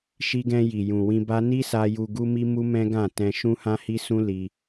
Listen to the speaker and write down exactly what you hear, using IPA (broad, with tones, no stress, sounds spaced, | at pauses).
ʃ i˧ ɡ ɛ̃˧ j i˨ j ũ˨ w ĩ˧ b a˦ n i˦ s a˧ j u˨ ɡ u˧ m i˧ m u˦ m ɛ̃˦ ɡ ã˦˨ t ɛ̃˧ ʃ ũ˦ h ã˦ h i˦ s ũ˦ l i˧